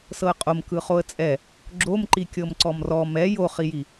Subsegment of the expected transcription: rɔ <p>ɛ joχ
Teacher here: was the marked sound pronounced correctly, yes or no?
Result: no